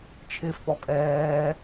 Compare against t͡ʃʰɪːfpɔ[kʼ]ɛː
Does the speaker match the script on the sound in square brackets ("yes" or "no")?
yes